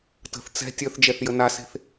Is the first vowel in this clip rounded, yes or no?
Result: no